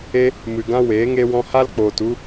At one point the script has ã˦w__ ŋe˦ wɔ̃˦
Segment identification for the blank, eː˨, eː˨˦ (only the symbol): eː˨˦